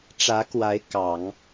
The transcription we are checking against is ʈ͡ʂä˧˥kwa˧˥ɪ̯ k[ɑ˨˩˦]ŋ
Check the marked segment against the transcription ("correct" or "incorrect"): correct